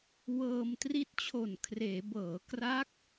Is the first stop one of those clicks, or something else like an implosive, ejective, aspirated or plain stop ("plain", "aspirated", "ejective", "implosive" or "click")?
plain